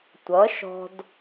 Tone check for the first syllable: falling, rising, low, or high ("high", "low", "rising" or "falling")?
rising